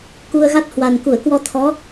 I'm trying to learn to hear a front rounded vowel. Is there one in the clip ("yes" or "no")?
no